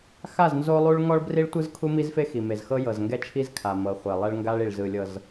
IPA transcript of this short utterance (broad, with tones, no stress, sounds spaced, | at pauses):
x a˦˨ z n z o˦ lˠ u˦ ɭ ŋ ɔ˦ ɭ b r i˦ ɭ tʷ ɯ˦ z kʰ u˦ m i˦ z f e˦ x i˨ m e˨ z x ɤ˦ j ɤ˨ z ŋ ɡ ɛ˦ t͡ʃʰ i˦ z kʰ a˨ m ɤ˨ χʷ ɛ˨ lˠ ɛ˦ ɭ ŋ ɡ a˦ ɭ i˨ ɭ z ɯ˨ lʲ ɤ˨ z